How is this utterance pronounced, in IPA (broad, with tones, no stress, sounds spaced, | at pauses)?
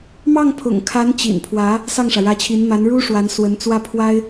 m ɑ˥˩ ŋ pʰ ʊ̰˨˩ ŋ kʰ a˧˥ n t͡ɕ ḭ˨˩ n pʰ w ä˧˥ | s ɑ˥˩ ŋ ʂ ä˩ ɻ ä˧˥ t͡ɕʰ i˧˥ n m a˧˥ n ɻ u˥ ʂ w a˧˥ n s w ə˧˥ n t͡s w ä˥˩ pʰ w a˥ ɪ̯